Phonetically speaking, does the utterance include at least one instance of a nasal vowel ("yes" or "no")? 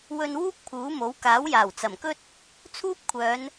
no